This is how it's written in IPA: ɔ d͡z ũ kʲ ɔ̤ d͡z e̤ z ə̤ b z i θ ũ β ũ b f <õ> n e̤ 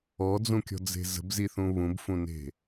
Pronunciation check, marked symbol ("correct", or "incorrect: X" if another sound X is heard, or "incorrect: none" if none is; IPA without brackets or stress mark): incorrect: ũ